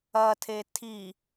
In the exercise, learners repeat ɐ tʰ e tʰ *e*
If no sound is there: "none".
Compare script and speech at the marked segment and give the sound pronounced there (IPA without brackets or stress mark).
i